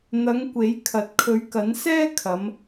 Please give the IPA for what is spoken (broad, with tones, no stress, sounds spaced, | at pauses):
n̪ ɐ˨˧ ŋ kʷ e˨˥ j kʰ ɐ˨ t̚ kʰ ɵ˨˥ ɥ k ɐ˨˥ n s ɛː˥ kʰ ɐ˨˧ m